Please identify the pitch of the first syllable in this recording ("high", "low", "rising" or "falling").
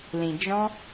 low